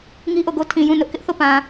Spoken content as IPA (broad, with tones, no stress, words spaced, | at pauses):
ŋi˦ʔo˦˨ɡo˦ tʰĩ˨jũ˦˨ nʊ˦ʔkɪ˦ʔθo˦˨pã˨